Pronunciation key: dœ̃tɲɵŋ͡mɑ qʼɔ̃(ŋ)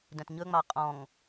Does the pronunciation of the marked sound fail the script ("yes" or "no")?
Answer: no